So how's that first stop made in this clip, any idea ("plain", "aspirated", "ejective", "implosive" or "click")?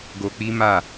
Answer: plain